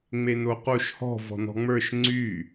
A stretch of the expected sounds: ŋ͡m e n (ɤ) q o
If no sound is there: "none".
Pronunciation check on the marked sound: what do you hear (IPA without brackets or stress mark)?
o